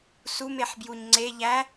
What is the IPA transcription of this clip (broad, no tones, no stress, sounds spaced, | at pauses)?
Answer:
s u m e ħ b j u ɲ ŋ͡ǀ e ʎ æ